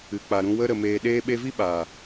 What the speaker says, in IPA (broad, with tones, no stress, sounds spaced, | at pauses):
ɨ˨ k͡p a˨ ɾ ũ˧ w ə˧ ɾ ə˨ m eː˨ ɗ eː˧ ɓ e˧ v i˦ ɓ a˨